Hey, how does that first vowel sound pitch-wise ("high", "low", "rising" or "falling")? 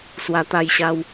low